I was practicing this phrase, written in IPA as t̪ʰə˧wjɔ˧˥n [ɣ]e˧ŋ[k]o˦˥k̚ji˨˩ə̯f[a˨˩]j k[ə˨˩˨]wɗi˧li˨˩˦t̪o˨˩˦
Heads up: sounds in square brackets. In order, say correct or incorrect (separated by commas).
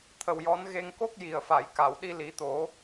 correct, correct, incorrect, incorrect